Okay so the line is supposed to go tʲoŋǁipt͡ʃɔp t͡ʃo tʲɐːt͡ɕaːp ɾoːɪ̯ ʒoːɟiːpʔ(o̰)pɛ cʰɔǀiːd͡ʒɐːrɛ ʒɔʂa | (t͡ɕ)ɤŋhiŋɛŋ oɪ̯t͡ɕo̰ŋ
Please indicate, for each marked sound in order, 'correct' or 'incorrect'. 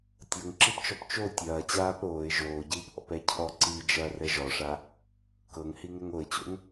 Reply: incorrect: ɔ̰, incorrect: k

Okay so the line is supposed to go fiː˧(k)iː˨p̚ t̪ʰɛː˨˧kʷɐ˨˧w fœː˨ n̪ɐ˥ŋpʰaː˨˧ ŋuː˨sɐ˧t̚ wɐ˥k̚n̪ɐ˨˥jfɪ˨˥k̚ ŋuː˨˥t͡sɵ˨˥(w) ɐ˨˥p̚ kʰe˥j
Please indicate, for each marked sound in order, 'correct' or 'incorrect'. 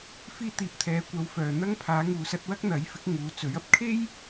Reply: incorrect: t̪, incorrect: ɥ

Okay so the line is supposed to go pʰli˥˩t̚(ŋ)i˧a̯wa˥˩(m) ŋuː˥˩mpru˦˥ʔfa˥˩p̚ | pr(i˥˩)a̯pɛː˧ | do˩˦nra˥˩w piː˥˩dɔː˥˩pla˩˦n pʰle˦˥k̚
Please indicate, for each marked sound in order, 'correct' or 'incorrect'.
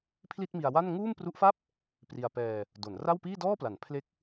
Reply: incorrect: m, incorrect: n, incorrect: i˧

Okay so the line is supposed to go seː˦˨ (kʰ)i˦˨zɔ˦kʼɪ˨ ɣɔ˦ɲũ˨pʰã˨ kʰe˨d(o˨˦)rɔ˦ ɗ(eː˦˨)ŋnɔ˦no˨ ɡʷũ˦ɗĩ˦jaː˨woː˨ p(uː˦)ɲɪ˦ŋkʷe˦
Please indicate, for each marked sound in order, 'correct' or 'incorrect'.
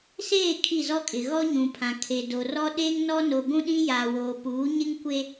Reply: correct, incorrect: o˨, incorrect: eː˦, incorrect: uː˨˦

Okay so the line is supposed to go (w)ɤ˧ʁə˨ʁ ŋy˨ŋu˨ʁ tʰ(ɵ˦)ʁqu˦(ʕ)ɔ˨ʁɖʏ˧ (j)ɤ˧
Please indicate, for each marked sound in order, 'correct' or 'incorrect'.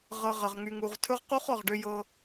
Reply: incorrect: ʁ, correct, incorrect: χ, correct

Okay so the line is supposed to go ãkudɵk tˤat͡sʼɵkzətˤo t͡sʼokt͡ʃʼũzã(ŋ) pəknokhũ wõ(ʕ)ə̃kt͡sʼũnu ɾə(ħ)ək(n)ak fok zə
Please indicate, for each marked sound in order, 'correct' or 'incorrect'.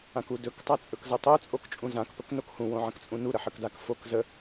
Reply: incorrect: k, correct, correct, incorrect: d

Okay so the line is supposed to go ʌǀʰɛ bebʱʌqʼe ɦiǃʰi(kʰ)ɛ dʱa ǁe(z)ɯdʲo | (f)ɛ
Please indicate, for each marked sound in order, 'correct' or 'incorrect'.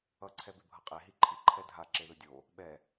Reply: incorrect: ǃʰ, incorrect: ð, incorrect: ɓ

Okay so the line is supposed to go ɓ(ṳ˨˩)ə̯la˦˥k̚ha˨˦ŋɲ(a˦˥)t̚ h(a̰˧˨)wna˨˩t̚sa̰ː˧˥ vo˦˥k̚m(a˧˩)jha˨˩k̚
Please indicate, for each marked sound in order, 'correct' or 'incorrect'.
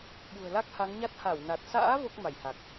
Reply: correct, correct, incorrect: a˧˩, correct

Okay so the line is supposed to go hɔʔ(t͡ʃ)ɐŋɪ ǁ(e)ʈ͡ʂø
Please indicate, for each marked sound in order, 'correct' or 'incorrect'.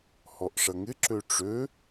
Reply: incorrect: ʂ, incorrect: ø

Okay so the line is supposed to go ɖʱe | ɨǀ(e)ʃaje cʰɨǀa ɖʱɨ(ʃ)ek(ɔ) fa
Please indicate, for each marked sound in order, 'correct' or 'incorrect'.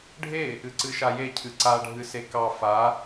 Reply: incorrect: ɨ, incorrect: s, incorrect: ɑ

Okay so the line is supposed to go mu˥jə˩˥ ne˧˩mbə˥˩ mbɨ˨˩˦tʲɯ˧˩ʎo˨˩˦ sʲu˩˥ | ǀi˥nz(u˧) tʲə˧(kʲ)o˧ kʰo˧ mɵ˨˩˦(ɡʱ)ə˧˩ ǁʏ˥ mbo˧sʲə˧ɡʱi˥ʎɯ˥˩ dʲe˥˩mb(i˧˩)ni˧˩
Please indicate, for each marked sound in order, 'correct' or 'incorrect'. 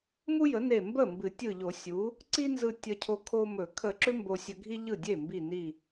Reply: incorrect: ɯ˧, incorrect: cʰ, incorrect: kʰ, correct

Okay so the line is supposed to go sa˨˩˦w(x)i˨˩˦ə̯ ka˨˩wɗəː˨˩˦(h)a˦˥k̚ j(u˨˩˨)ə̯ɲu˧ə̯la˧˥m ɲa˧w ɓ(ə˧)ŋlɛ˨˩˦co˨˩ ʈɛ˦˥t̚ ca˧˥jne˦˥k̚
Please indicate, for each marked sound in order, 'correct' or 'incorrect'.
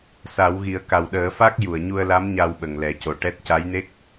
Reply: incorrect: ɣ, incorrect: f, correct, incorrect: ə˨˩

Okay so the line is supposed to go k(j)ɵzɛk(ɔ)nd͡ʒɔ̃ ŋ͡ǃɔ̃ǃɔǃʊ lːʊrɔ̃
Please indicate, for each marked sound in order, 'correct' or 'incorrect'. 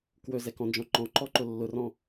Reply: incorrect: w, incorrect: ɔ̃

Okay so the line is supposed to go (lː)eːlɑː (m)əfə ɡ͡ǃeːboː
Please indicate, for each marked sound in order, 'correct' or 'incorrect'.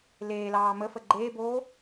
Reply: incorrect: l, correct

